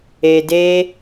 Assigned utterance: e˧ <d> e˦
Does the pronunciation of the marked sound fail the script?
no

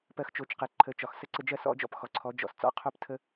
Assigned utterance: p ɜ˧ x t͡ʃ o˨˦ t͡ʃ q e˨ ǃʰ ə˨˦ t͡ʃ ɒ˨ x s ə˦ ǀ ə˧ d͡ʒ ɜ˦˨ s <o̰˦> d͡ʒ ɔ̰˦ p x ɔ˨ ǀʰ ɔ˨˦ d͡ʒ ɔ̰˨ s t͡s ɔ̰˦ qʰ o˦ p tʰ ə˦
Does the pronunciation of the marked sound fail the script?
yes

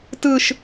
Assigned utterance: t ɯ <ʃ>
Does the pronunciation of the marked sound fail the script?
no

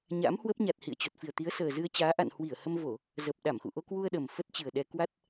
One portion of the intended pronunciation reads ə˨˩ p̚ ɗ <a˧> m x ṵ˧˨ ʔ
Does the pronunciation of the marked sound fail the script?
yes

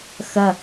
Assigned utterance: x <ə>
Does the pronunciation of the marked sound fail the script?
yes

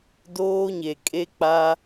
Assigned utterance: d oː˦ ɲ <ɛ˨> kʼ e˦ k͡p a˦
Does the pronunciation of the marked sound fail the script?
yes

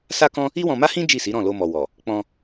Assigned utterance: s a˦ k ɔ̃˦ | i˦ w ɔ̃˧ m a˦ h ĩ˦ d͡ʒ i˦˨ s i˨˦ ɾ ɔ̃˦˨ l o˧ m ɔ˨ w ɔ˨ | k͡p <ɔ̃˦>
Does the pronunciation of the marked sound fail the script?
yes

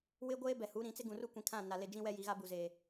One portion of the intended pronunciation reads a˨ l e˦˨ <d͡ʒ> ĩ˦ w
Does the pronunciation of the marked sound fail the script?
no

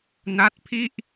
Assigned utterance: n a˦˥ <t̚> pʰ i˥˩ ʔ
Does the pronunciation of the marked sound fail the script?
no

